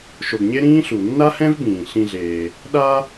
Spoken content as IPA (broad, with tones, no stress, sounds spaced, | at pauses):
ʃ o˨ ɡ ɲ e˥ ɾ ĩː˥ ɬ u˩ nː a˥ h ɛ̃˥ v b ĩː˩ ɬ ĩ˨ ɮ eː˩ | ɗ a˦